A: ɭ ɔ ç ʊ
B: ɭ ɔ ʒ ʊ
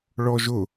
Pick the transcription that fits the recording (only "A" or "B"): B